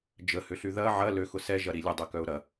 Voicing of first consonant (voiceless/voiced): voiced